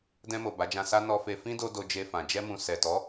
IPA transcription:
d ɛ̃˧ m o˨ b a˨˦ d͡ʒ ã˧ s a˦ n ɔ˧ f e˧ f ĩ˦ d o˦ d o˧ d͡ʒ e˧ f ã˨ d͡ʒ ɛ˧ m ũ˨ s ɛ˨ t ɔ˨˦

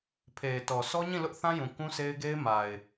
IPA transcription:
pʰ e˨ ɪ̯ t ɔ˨ s ɔ˦ ɲ ĩ˦˨ l ʊ˦ ʔ θ ã˦ j ũ˨ k ũ˦ sʰ e˦ ɪ̯ ɡ e˦ ɪ̯ m a˨ ɪ̯

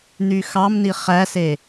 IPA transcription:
n̪ y x ɑ m n i χ æ s e

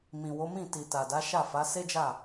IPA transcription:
m ĩ˨ w o˨˦ m ĩ˦˨ t i˨ t a˨ d a˨˦ ʃ a˦˨ f a˨˦ s e˦ d͡ʒ a˦˨

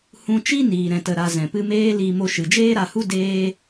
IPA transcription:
h ũ˧ t͡ʃ i˦ n iː˨ ɾ ɛ̃˨ t ə˨ ɾ a˧ z ɛ̃˨ p ɨ˧ m eː˦ l i˧ m o˧ ʃ ɨ˨ d͡ʒ eː˦ ɾ a˧ h u˦ d eː˦

